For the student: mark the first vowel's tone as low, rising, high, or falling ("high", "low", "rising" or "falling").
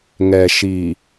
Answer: low